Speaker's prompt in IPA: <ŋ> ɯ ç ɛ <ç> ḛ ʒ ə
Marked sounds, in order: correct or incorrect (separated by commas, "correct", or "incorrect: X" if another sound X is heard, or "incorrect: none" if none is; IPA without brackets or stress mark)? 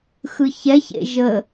incorrect: x, correct